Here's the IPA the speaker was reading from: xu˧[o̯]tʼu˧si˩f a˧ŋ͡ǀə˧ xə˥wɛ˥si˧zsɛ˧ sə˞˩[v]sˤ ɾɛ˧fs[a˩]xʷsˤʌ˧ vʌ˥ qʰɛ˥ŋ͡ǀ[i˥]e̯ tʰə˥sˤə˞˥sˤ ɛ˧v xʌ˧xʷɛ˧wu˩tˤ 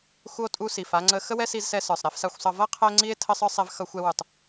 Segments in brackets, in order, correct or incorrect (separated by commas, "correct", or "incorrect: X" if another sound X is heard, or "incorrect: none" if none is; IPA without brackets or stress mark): correct, incorrect: none, incorrect: a˧, correct